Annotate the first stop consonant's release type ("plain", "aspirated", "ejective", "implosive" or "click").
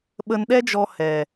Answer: implosive